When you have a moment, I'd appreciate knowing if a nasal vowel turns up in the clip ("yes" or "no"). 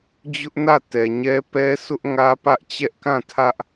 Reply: yes